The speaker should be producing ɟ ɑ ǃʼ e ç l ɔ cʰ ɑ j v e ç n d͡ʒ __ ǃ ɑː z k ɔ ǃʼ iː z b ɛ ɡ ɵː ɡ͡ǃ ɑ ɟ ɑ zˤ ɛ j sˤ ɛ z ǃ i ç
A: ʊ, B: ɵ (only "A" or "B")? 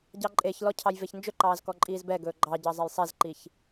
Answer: B